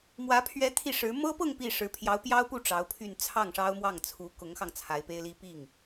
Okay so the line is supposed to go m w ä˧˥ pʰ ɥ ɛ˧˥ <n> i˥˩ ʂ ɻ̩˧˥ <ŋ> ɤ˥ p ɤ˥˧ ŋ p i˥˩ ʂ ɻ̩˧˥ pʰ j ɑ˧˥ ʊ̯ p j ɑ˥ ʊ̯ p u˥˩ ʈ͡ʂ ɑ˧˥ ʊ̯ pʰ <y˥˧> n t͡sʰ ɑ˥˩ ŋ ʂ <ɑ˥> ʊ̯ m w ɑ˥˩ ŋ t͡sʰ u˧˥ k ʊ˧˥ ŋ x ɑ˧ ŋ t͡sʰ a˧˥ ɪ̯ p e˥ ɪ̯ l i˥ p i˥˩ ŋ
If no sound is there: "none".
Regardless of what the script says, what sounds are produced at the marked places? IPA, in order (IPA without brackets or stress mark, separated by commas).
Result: t̪ʰ, m, y˥˧, ɑ˥